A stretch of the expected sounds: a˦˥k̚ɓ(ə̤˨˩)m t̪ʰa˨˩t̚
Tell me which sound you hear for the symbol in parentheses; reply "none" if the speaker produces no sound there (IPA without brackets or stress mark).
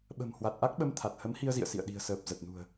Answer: ə˧